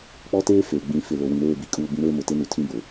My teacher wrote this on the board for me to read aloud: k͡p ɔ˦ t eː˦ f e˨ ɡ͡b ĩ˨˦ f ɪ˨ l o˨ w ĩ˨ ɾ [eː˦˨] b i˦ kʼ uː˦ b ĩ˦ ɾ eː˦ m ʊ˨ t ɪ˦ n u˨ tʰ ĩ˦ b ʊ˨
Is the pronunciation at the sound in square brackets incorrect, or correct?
correct